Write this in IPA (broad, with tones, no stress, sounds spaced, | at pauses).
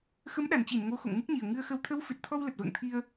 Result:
x ə˨˦ m ɗ a˨˩ n t͡ɕ i˧˩ n ŋ o˨˦ x o̰˧˨ ŋ m u˦˥ k̚ ɲ i˨˩ ə̯ ŋ ɨ˧ ə̯ x ə˧ w t̪ʰ ə˨˦ w f ɨ˨˩ t̚ t̪ʰ ɔ˧ w l ə˨˩ t̚ v ə̰ː˧˨ ŋ t̪ʰ i˧ ə̯